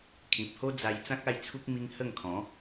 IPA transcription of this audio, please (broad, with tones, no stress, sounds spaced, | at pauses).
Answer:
kʰ ĩ˨ p̚ h o˦ d͡z a˧ j t͡s ã˦ k̚ a˥˧ j t͡sʰ u˦ k̚ m i˦ ŋ h ə˥˧ ŋ kʰ ɔ̃˨˦